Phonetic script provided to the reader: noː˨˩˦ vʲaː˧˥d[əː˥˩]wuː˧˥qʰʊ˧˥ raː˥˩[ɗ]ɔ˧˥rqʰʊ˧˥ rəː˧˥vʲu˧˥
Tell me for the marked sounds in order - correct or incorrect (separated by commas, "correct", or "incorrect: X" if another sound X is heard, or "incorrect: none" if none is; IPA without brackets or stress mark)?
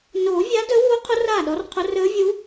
incorrect: əː˧˥, correct